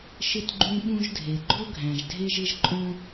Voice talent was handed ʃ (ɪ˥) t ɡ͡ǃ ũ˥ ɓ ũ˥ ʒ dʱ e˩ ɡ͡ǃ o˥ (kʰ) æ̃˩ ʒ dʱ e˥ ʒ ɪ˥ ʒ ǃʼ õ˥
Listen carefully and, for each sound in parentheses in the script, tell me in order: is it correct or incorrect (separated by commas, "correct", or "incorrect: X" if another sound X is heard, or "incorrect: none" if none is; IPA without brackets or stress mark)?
correct, incorrect: ɡʱ